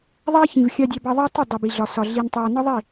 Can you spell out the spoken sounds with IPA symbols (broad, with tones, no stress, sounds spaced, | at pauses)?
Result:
ðˤ æ˦ ç ĩ˨ v xʲ ɑ˨ dʲ æ˨ b ɑ˨ ðˤ ɑ˦ tˤ ɪ˦˨ dˤ i˨ b i˨ ɮ ɒ˨ s ɒ˨ ɮ i˨ n tˤ æ˨ n ɒ˦ ðˤ i˦˨